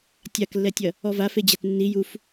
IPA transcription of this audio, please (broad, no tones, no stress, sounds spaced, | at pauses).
tʲ a k lː ɛ tʲ ɐ | ɔ v a f e d͡ʑ æ t nː i j u f